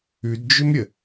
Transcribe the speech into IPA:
ʉ d d͡ʒ ʏ m ɾʲ ə

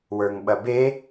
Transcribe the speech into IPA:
w ə˞ ŋ ɓ ɐ b e

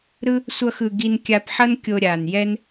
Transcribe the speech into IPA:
ɾ ɯ˥ | sʷ ʌ˥ x ɯ˧ ɡ i˧ n kʲ a˧ p ħ ʌ˥ n kʲ o˧ ɾʲ aː˩ n j ɛ˥ n

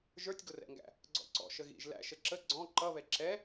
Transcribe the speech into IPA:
ʒ ə˞ tʲ ɡ ʊ r ɛ̰ ŋ ɡ æ̰ | ɡ͡ǀ ɔ̰ ǀ ɔ̰ ʃ ə ɣ ḭ ʒ l æ̰ ʃ ə ǁ ə ɡ͡ǀ ɔ̃ ǃ ʌ β ɛ ǁ ɛ

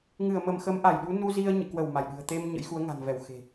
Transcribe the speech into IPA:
ŋ ɨ˧˩ ə̯ m ə˧˩ m x ə˨˦ m ʔ a˧˩ j ɗ u˨˦ n u˧ z i˧ ə̯ ɲ ɨ̰˧˨ k w ə˧˩ w m a˧˩ j ɗ ɨ̤˨˩ ə̯ t̪ e˧ m ɲ ə̰˧˥ j x u˨˦ ə̯ ŋ a̤˨˩ n v ɛ˧˩ w x e̤˨˩

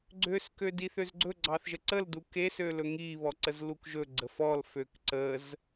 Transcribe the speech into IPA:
ɡ͡ǀ ø s k ø d i θ ø z ɡ͡ǀ ɵ ɡ͡ǀ ɑ θ ʒ ə ǀ ə l d u k e s ø l ɵ ŋ i β ɔ ǀ ə z l u k ʒ ɵ ɡ͡ǀ ə f ɔ l f ø k ǀ ə z

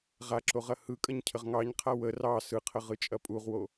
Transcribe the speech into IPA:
ʁ a ǁ o ʁ ɐ h ɯ kʼ ɐ ɲ cʰ ə ʁ ŋ ɑ ɲ qʰ a w ə r ɑ s ɯ qʰ ə ʁ ɯ t͡ʃʼ ɐ pʼ u ʁ w o

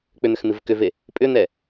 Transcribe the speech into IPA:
k͡p ʏ n̪ ʏ x n̪ ɨ v k ʏ v e | pʼ ʏ n̪ ɛ

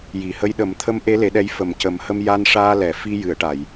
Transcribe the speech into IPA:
j i˨˩˨ h ə˧˥ j ɗ ə˨˩˦ m t̪ʰ ə˧˥ m ʔ e˧˥ l e˨˩˦ ɗ ɛ˧˥ j f ə˨˩ m c ə˨˩˦ m h ə˧ m j a˧ n ʂ aː˧ l ɛ˨˩˨ f i˧ j ɨ˨˩˨ ə̯ ʈ a˨˩˨ j

